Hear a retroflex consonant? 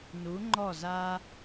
no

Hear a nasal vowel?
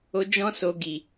yes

